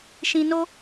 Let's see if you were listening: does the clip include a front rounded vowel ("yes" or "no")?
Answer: no